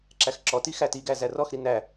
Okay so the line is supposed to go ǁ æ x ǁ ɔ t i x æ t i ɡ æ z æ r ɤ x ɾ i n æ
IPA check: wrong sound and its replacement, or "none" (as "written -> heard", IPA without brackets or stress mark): ɤ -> ɔ